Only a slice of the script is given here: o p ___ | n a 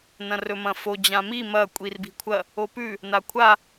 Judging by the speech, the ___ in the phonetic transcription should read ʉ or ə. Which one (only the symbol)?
ʉ